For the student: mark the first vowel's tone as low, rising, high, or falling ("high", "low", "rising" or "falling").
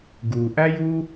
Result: low